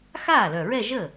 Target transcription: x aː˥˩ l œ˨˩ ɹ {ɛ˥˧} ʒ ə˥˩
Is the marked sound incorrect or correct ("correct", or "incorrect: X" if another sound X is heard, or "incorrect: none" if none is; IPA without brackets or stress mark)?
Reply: correct